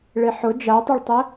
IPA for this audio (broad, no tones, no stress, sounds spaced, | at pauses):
ɭ e ħ ʊ d͡ʒ a tˤ ɵ ɭ tˤ ɛ